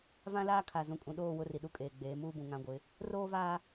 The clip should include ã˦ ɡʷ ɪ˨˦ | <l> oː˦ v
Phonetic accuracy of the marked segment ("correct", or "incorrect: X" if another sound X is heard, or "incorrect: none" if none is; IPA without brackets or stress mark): incorrect: r